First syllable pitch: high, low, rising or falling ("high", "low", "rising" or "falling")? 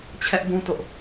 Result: high